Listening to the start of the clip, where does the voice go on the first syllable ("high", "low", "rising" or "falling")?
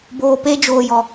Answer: low